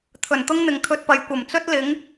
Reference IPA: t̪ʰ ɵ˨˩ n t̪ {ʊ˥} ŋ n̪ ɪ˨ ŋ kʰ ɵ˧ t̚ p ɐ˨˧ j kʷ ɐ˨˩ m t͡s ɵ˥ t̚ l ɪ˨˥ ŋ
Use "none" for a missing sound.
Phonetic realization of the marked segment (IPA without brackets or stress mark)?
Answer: ʊ˥